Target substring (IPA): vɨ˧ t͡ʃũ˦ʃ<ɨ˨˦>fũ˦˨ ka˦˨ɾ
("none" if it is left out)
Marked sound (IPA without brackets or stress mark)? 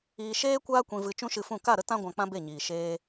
ɨ˧